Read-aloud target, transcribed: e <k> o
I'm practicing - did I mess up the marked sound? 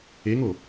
yes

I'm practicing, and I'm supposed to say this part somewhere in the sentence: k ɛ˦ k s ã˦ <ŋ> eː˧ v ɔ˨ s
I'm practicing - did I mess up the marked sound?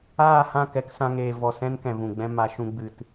no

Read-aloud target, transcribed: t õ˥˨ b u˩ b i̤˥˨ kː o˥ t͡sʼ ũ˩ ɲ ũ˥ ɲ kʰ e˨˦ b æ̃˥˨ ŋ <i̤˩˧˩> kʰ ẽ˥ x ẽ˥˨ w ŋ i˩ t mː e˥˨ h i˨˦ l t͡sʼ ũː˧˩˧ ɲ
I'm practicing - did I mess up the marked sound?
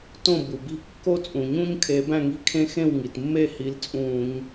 yes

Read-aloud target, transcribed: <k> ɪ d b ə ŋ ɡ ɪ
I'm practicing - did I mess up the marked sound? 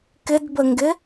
no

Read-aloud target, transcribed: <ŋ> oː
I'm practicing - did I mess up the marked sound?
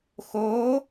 yes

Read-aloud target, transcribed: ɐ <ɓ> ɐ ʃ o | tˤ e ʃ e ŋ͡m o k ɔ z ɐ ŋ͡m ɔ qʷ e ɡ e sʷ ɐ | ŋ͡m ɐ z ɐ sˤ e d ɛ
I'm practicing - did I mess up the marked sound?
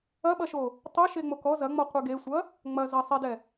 no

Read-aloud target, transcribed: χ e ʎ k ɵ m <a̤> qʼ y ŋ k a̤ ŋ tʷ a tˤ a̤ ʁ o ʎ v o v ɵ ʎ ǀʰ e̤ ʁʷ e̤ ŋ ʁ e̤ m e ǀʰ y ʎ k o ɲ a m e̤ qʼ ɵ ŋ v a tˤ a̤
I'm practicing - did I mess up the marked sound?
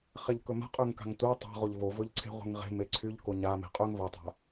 no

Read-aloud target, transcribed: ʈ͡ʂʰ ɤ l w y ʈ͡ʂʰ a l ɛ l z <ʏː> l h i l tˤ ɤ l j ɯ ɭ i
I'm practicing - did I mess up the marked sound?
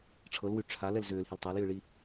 no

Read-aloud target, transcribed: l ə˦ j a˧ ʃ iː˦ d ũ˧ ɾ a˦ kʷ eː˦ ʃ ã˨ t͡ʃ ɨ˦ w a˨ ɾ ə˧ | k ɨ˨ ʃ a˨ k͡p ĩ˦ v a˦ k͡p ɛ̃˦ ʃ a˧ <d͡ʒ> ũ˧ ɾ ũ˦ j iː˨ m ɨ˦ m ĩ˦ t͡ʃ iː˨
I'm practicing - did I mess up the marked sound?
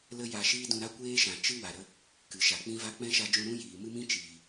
no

